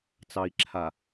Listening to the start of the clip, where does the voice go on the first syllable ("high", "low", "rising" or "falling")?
low